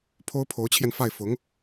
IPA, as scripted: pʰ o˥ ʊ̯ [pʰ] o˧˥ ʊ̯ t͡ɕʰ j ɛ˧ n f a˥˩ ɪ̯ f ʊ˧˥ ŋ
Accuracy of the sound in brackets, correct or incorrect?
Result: correct